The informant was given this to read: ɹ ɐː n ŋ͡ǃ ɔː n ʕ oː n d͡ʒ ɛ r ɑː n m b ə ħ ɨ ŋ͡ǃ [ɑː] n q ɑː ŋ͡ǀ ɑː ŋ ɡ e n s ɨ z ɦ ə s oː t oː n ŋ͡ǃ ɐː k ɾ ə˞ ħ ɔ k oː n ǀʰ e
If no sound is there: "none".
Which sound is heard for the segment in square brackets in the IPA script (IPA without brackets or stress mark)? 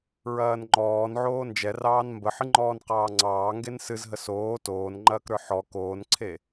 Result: ɔː